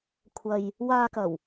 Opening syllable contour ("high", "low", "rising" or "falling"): low